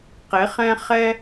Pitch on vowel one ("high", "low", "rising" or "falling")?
rising